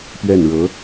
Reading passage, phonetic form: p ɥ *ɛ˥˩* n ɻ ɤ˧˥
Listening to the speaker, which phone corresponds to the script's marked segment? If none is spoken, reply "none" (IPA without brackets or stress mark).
ɛ˥˩